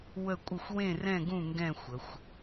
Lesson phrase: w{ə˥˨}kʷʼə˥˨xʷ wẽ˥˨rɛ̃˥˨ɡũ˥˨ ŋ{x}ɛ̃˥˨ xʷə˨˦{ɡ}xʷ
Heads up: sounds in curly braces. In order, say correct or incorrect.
correct, incorrect, incorrect

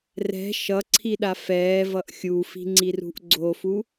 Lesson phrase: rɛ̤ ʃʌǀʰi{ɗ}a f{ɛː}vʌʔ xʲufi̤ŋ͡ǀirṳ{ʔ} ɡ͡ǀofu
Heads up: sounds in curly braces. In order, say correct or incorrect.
correct, correct, correct

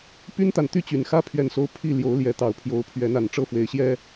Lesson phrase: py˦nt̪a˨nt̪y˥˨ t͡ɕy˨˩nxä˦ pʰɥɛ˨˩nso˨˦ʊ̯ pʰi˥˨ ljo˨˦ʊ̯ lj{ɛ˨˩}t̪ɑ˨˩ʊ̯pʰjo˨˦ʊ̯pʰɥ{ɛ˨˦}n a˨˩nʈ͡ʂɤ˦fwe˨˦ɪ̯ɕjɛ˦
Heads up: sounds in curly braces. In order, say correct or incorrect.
incorrect, correct

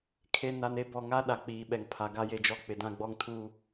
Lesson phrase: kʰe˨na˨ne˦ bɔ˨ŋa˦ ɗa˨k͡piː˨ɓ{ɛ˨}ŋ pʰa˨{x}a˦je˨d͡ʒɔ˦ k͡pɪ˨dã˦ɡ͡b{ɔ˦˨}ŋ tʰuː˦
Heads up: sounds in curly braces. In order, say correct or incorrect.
correct, incorrect, incorrect

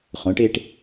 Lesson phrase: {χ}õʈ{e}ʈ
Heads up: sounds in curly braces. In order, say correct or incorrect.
correct, correct

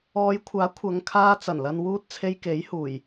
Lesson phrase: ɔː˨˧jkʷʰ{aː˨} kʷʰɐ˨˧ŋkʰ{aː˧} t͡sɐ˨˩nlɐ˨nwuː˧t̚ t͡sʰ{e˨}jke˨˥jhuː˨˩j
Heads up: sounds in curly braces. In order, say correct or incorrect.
incorrect, correct, incorrect

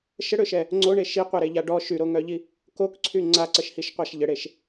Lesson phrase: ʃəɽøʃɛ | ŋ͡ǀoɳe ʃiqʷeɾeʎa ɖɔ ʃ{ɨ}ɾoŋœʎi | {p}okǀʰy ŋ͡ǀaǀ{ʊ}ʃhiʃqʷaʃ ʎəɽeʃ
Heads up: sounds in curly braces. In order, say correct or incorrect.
incorrect, incorrect, incorrect

